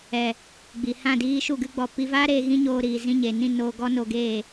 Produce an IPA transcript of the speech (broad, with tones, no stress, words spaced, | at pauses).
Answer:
ɛ˨ | ɡ͡bi˨hã˦˨diː˦ ʃu˦˨ɡɨ˦ɡ͡bɔ˧ pi˧vaː˦ɾeː˧ ɣĩ˦ɲoː˧ɾiː˨ zĩ˧ɲe˨nĩ˦˨ noː˧ɡɔ˦ no˧ɡeː˦˨